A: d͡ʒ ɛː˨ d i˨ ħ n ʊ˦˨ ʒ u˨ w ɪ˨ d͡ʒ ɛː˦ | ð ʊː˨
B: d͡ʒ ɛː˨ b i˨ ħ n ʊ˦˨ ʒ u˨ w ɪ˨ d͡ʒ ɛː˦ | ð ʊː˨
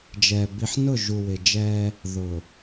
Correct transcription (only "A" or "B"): B